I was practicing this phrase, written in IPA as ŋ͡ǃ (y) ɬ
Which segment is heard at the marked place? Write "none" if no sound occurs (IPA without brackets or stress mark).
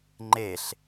e